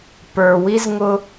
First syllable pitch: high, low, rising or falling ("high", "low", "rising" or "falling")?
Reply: low